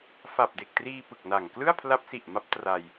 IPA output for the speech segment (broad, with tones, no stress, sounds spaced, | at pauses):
f a˨˩ p̚ d e˨˩ k̚ t r iː˧ p ɯ˨˩ k̚ n a˨˩ ŋ k l ɯ˥˩ a̯ pʰ l a˦˥ p̚ s i˨˩ ʔ m a˦˥ p̚ t r a˧ j